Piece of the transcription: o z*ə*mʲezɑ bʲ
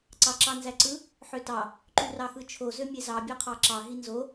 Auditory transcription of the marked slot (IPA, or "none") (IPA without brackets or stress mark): ø